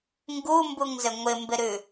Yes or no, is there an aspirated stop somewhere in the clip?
no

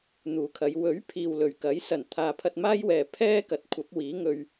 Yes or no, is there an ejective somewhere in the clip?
no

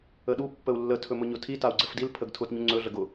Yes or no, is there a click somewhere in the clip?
yes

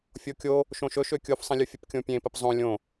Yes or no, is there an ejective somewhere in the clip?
no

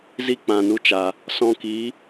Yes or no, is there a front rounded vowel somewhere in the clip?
no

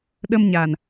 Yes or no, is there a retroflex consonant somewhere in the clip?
no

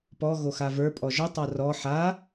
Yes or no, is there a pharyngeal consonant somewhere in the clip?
yes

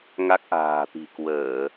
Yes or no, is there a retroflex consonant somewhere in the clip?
no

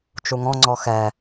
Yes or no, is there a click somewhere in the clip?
yes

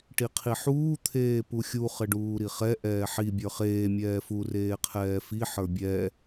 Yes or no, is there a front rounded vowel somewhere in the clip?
no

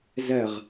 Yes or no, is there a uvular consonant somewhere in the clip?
yes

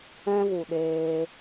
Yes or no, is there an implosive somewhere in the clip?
yes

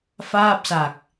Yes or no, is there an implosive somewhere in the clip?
no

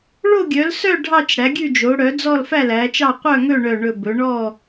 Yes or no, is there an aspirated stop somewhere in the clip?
no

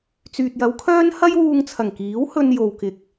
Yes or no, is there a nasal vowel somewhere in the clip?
no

